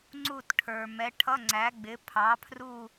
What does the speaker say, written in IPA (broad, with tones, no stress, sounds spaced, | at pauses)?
ŋ͡ǀ u˧˩ t ʈʰ ə˞˩ m ɛ˨˥ ʈʰ ʌ˧˥˧ ŋ͡ǀ æ˨˥ ɡ͡b ɪ˨˥ pʰ ɑ˨˥ pʰ r u˥˧